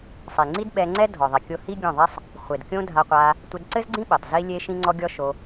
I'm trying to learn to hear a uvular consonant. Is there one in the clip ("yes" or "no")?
yes